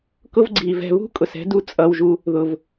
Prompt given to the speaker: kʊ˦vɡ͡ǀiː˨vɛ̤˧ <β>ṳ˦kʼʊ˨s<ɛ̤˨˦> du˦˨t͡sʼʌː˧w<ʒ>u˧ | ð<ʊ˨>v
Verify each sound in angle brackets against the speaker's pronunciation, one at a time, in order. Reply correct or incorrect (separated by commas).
correct, correct, correct, correct